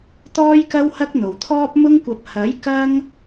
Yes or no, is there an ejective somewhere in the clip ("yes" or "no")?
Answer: no